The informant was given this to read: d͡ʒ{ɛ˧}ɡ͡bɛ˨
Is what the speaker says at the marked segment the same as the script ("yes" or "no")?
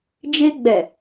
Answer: no